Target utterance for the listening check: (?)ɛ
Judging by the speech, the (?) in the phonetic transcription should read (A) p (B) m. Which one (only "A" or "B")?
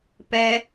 A